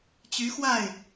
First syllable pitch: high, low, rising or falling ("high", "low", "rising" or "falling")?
rising